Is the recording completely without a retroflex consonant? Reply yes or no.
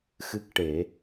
no